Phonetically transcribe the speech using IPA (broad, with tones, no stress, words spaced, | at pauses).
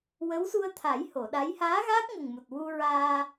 wə˧˥wsu˧ə̯t̪ʰa˨˩˦j ho˨˩˨ɗa˧˥j haː˧˥ɣaː˦˥k̚ ŋə˨˩ŋmu˨˩t̚ wu˧ɹaː˧